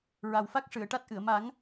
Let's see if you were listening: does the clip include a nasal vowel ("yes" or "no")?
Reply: no